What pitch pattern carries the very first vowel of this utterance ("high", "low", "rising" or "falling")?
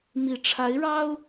low